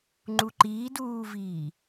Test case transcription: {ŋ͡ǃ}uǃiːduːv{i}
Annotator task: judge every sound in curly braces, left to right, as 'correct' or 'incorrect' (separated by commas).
correct, incorrect